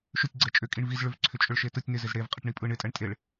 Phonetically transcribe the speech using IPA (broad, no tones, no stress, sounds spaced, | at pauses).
ʃ ʏ tʲ ɡ͡ǀ ɛ t͡ʃʼ ʏ kʼ i ɳ v i z ɭ ʏ v ǀʰ ʏ t͡ʃʼ ʏ ɭ ʃ e t ɯ tʲ n ɪ z ɪ z ɽ e v qʼ ɪ ʈ ɳ i pʼ ɯ ɳ ɪ tʼ ɛ ɳ tʼ e ɭ